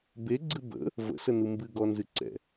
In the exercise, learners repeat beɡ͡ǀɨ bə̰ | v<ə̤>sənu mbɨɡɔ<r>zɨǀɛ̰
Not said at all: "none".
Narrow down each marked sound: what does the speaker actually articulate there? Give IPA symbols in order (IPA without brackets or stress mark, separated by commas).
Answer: ə̰, n